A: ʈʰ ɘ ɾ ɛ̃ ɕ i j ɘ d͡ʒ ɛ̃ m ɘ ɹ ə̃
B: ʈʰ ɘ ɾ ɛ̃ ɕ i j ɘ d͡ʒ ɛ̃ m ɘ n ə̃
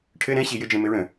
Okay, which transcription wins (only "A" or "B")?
A